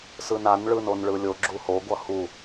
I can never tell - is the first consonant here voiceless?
yes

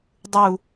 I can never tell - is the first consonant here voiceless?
no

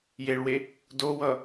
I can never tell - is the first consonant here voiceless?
no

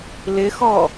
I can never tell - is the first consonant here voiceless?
no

